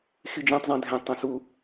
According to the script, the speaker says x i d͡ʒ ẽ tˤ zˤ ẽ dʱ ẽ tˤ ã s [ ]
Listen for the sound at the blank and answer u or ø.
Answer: u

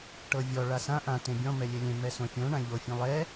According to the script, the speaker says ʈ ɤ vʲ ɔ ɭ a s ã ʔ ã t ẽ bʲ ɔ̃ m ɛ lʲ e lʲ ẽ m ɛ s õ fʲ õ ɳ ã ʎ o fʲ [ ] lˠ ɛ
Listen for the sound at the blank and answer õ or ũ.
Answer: ũ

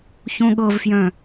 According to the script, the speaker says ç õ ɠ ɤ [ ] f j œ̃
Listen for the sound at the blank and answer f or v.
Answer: v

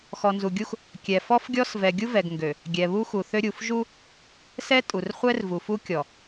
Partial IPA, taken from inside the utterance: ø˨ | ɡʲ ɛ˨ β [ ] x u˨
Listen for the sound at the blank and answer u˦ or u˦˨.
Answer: u˦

